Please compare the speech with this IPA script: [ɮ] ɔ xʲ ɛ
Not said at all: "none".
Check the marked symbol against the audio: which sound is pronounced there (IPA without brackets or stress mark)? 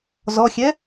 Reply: z